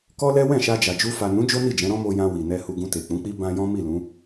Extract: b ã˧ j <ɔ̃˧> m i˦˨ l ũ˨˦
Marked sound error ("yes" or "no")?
yes